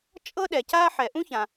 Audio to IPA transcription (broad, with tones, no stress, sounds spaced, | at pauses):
t͡ʃʼ ɤ˥ ɗ ɛ˩ c a˥ ħ ɛ˩ ʔ ũ˥ ç ã˩